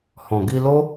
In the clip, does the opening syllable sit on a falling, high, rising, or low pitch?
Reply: low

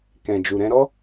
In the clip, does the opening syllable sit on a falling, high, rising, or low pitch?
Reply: low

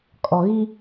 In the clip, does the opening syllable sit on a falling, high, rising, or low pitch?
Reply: low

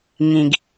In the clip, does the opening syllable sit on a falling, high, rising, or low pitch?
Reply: low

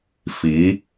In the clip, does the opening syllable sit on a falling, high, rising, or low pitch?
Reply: rising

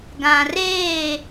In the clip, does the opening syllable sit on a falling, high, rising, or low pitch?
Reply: low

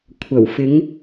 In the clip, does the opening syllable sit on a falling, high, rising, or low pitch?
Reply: low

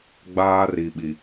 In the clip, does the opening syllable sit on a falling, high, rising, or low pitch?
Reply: high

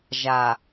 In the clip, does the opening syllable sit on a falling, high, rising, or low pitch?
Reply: low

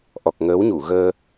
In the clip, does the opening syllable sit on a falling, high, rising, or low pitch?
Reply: low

